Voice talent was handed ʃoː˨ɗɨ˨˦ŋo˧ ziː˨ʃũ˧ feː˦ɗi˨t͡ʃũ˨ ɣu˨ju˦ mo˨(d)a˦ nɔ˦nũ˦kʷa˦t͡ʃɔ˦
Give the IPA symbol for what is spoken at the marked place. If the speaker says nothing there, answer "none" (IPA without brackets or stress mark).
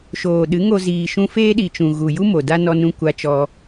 d